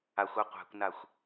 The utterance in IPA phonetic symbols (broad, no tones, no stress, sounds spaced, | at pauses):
a xʷ a qʷ æ̤ kʷ n a xʷ